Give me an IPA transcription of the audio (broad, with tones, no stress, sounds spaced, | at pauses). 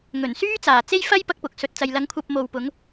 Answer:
ŋ ɵ˨˩ n s yː˥ t͡s aː˨˩ t͡s e˥ j f ɐ˥ j p ɐ˥ k̚ p ʊ˨˥ k̚ s ɵ˨ t̚ t͡s ɐ˨ j l ɐ˨˥ ŋ kʷʰ ɐ˧ p̚ m o˨ w p ʊ˨˧ ŋ